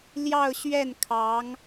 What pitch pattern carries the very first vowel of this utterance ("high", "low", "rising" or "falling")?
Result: falling